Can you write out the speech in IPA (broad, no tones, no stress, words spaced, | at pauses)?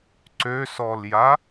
ǀøsɔlja